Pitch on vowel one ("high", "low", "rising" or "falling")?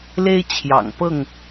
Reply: high